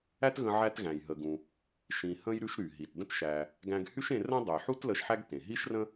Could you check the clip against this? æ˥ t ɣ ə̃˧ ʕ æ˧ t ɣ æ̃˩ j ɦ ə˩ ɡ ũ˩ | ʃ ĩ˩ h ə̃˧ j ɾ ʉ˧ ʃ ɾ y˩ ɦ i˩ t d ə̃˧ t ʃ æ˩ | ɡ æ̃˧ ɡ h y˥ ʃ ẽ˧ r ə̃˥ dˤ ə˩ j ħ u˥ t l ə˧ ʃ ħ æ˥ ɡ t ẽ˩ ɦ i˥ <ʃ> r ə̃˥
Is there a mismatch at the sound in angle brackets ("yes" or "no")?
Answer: no